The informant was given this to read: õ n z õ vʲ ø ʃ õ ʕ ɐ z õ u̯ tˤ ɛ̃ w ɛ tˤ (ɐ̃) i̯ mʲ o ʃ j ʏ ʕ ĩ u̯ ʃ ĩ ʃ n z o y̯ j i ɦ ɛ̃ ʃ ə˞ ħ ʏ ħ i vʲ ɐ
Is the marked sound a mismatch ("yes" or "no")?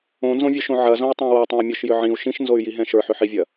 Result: no